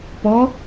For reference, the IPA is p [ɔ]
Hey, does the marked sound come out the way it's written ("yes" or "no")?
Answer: yes